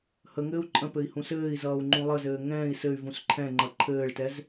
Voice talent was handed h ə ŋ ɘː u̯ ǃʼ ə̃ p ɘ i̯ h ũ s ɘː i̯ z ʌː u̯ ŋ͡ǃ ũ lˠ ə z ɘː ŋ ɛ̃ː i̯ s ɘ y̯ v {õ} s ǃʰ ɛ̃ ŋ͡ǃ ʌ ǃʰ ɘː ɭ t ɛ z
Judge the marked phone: incorrect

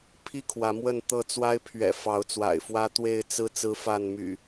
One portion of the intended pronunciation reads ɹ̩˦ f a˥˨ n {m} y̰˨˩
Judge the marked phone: correct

